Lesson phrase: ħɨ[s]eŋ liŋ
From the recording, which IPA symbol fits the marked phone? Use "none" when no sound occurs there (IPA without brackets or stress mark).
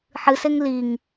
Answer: s